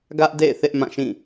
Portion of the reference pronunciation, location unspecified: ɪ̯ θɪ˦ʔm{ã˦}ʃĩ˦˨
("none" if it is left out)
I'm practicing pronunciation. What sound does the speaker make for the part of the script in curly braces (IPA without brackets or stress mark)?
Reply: ã˦˨